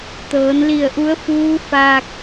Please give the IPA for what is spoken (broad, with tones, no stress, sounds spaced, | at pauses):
t̪ ɤː˩˧ n l i˧˩ ə̯ ʔ u˧˥ ə̯ f uː˧˥ f aː˧ k̚